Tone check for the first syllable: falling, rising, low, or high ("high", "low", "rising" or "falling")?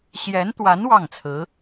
rising